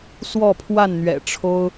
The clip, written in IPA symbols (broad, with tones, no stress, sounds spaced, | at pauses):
s w ɔ˥˨ pʰ w a˥˨ n n̪ ɥ ɛ̰˨˩ ʈ͡ʂʰ o˦ ʊ̯